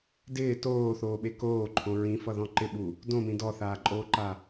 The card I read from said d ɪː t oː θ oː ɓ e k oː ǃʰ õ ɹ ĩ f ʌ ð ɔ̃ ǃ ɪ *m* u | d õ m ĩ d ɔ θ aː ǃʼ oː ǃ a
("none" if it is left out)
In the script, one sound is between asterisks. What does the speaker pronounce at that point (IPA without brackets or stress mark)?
ɓ